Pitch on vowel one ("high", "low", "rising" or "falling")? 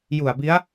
low